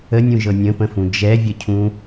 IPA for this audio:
ə nʲ ũ ʒ ɤ nʲ ə̃ p ə̃ f ũ d͡ʒ ɛ vʲ ə cʰ ũ

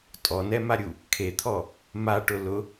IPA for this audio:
tʼ ɔ n ɛ m a ɾʲ u | kʰ e t̪ʰ ɔ | m a ʈ ʊ l ʊ

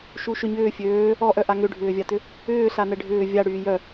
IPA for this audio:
ʃ u ʃ ʏ ɲ ʏː fʲ øː | ɔ ʔ œ ʔ a ŋ ʏ ɖʱ ʏː vʲ a t ʏ | ʏː ɬ a n ɛ ɖʱ ʏː vʲ a ɽ yː j œ

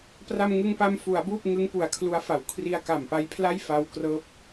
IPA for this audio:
p r a˧ m ŋ ɯ˧ ŋ p a˧ m f u˩˦ a̯ b uː˥˩ p̚ ŋ ɯ˦˥ ŋ p u˩˦ a̯ kʰ l u˦˥ a̯ f a˩˦ w kʰ r i˧ a̯ k a˨˩ m p a˦˥ j pʰ l a˥˩ j f a˧ w k r ɤː˦˥ p̚

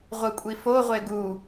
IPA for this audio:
ʁʷ ɯ kʷʼ i f o ʁʷ e ɡ u

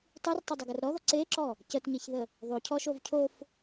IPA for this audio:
tˤ ɯ r tˤ o dˤ ə ɡ ə r ɾ ɔ ð ɔ ǀ e ǁ ɔ | c ə t ɲ e ç ð ə | ðˤ o cʰ ɔ ʃ o v cʰ o f

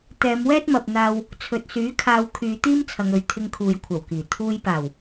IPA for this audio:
t̪ ɛː˨˧ m w ɛː˥ t̚ m ɐ˨ p̚ n̪ aː˧ w | t͡sʰ ɵ˨ t̚ s yː˨˥ kʰ aː˧ w kʰ yː˨˧ t̪ iː˥ m t͡sʰ ɐ˨˧ ŋ ɵ˨˧ ɥ t̪ʰ ɪ˧ ŋ kʰ uː˨ j kʷʰ ɐ˨˩ w k iː˨˩ t̪ʰ uː˧ j p aː˨˩ w

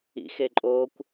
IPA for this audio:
ḭ x e ǃʼ o kʷ

